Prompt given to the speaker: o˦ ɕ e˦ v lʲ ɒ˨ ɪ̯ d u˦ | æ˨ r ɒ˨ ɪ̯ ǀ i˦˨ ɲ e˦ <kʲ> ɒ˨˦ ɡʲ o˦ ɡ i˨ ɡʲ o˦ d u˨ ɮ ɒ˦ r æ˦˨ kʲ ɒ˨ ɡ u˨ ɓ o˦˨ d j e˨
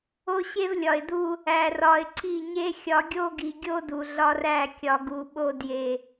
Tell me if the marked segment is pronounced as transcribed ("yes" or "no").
no